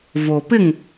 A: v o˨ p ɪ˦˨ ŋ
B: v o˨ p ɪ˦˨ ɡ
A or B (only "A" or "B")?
A